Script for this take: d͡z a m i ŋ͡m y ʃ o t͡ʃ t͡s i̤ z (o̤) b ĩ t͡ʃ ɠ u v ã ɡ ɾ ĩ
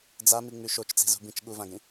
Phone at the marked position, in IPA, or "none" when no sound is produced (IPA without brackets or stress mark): ṳ